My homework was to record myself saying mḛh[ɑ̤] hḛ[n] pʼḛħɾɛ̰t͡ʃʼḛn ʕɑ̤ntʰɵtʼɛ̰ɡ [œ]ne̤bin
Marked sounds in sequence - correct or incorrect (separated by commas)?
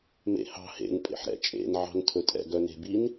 correct, correct, correct